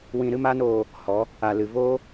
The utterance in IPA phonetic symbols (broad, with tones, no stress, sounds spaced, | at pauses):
w ĩ˧ ɾ ɨ˦ m aː˦ n oː˧ | h ɔ˨˦ | a˨ l ɨ˨ v oː˦